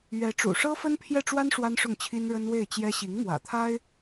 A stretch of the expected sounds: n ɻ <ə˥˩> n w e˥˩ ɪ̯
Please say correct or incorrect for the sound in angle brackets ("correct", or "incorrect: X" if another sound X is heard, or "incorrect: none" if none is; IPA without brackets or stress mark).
incorrect: ə˥